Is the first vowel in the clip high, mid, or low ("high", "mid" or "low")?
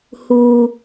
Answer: high